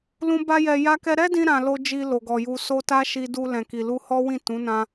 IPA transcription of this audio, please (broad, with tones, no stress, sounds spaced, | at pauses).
l ũ˦ b a˦ j ɛ˧ j a˦ k ɛ˦ ɾ ɛ˦ d ĩ˧ ɾ ã˧ l o˦ d͡ʒ i˧ l o˨ ɡ ɔ˨ j u˨ s o˧ t a˦ ʃ i˧ d u˧ l ɛ̃˨ k i˨ l u˧ h ɔ˦ w ĩ˦˨ t ũ˨˦ n ã˧